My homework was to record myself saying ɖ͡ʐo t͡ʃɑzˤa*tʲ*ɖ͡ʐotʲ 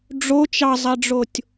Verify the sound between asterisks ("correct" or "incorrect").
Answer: incorrect